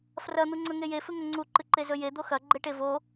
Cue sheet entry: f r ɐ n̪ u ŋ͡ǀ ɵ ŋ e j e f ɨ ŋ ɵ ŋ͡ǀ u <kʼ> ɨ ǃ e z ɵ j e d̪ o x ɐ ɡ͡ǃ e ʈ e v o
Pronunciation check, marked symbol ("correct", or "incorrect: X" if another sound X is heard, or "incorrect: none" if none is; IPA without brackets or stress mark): incorrect: ǃ